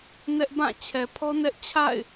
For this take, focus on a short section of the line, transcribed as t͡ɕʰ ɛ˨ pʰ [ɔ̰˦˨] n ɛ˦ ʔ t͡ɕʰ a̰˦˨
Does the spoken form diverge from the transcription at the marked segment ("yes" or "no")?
yes